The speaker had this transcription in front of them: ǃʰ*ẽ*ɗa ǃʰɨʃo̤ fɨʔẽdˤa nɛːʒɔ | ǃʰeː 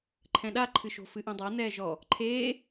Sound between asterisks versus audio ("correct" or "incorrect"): incorrect